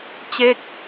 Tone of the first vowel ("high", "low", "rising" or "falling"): falling